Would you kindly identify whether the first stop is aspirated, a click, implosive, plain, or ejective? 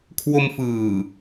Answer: aspirated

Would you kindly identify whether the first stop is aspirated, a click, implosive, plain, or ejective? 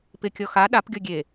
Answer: plain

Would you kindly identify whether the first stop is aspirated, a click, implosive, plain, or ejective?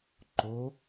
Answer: click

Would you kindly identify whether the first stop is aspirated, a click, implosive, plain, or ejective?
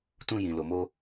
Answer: plain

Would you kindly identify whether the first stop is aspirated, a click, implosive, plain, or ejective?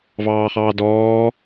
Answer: plain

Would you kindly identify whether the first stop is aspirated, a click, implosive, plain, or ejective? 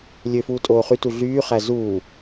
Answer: ejective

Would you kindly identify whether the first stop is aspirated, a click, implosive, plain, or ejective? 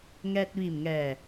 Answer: plain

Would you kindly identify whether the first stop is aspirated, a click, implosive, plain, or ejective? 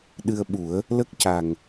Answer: implosive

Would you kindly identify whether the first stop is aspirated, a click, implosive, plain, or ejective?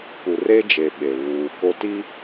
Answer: plain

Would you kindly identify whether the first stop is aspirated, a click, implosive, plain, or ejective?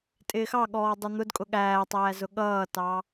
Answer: ejective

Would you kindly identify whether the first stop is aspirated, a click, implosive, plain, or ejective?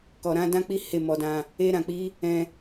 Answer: plain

